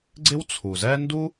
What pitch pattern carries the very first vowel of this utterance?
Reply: high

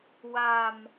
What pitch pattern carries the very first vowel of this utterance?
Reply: low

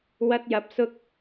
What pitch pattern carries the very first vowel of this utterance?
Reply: high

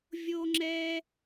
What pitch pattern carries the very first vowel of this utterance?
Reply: low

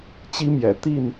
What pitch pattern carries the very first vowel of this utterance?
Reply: high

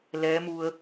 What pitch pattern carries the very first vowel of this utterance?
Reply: rising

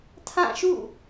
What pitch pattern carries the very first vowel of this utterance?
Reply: falling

